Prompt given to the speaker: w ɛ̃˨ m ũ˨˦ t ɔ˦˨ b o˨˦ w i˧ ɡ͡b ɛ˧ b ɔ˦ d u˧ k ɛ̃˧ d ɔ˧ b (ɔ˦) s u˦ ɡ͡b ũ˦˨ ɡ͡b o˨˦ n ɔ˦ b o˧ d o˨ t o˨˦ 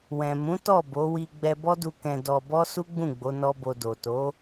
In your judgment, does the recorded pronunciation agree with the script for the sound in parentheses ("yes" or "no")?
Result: yes